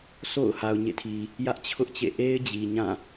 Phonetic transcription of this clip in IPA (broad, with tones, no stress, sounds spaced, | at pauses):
s o̰˦˨ ʊ̯ h a˨ ʊ̯ ɲ ḛ˦˨ tʰ i˨ | j ä˦ ʔ t͡ɕʰ ʊ˦ ʔ t͡ɕ ḛ˦˨ ʔ e˦ ɪ̯ d͡ʑ i˨ ɲ ã˦˨